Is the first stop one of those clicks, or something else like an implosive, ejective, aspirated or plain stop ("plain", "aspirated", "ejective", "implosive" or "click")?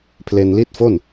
aspirated